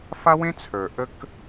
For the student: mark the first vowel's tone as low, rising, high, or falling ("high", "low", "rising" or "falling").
high